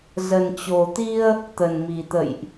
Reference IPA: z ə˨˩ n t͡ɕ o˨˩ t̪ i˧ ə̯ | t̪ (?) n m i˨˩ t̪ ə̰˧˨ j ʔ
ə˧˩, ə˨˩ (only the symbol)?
ə˨˩